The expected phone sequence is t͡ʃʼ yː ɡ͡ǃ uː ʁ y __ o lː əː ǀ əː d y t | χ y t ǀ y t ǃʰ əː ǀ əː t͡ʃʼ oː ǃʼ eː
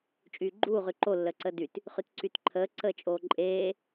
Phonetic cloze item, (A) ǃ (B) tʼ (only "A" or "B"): A